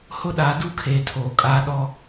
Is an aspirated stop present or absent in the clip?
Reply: present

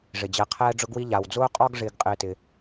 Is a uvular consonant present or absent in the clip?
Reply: present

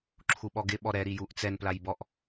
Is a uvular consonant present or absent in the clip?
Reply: absent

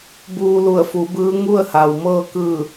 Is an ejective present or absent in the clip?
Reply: absent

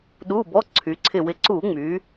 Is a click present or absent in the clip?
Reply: present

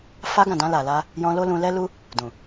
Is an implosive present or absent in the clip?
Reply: absent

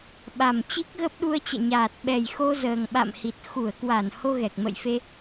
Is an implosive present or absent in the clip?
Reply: present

